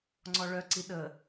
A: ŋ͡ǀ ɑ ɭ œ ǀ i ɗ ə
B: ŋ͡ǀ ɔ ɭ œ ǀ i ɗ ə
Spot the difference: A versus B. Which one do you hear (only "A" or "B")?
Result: B